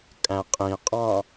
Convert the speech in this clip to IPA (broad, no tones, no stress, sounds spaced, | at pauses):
kʼ æ̃ qʼ ĩ qʼ ɑ̃